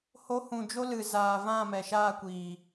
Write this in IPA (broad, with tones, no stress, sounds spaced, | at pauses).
h o˨˦ h ũ˨ d͡ʒ o˦ l ɨ˨ z aː˨ v ã˦˨ m ɛ˨ ʃ aː˦˨ kʷ iː˨